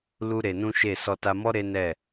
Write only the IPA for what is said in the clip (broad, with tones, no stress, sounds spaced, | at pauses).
l u˦ ɾ e˧ n ũ˦ ʃ e˦˨ s ɔ˧ t a˧ m ɔ˦ ɾ e˦ n ɛ˦˨